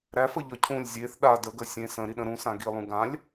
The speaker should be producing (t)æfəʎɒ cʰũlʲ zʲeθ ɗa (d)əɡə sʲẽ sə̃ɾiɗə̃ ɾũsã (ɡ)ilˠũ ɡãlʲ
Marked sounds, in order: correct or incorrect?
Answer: incorrect: ɾ, correct, correct

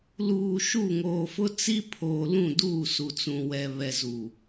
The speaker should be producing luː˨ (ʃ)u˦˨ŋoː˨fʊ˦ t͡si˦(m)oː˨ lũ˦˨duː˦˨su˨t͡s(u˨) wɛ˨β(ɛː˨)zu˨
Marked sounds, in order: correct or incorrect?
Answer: correct, incorrect: pʰ, incorrect: ũ˨, incorrect: ɛ˨

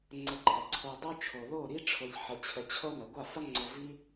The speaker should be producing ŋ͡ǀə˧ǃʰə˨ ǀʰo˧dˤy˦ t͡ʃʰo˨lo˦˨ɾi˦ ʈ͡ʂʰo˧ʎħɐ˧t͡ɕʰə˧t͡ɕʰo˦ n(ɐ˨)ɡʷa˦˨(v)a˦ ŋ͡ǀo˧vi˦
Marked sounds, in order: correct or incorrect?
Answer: correct, incorrect: f

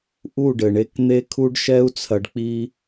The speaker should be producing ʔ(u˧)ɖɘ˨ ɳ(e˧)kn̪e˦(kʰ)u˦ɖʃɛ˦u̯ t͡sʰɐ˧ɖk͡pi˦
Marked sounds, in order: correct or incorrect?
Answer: incorrect: u˦˨, correct, correct

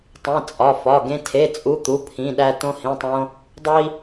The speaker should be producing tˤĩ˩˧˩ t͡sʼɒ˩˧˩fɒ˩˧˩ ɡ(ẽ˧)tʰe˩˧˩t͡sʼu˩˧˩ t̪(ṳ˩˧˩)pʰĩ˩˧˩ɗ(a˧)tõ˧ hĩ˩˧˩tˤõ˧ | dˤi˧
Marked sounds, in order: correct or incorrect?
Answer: correct, incorrect: u˩˧˩, incorrect: æ˧

